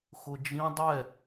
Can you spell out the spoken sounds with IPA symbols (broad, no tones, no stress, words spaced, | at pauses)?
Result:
xʊd͡ʒĩ dˤɛ